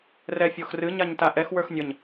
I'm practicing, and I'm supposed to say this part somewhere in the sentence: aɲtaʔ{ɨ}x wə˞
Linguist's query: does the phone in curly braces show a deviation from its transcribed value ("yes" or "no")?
yes